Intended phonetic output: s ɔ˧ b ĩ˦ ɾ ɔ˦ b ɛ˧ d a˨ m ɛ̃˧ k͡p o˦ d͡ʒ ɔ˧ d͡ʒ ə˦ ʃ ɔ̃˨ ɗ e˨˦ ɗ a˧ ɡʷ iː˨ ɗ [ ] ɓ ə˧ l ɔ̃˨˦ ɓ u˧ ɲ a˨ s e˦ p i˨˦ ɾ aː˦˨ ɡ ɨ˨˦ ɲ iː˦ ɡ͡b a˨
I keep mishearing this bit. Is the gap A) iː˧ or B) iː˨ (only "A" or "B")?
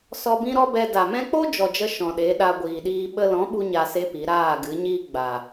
A